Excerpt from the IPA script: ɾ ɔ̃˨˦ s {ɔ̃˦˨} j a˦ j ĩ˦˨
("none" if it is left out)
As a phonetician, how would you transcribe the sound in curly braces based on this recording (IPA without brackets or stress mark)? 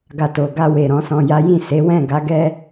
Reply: ɔ̃˧